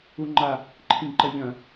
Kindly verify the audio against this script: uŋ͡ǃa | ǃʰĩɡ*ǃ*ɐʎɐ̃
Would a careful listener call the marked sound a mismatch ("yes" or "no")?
no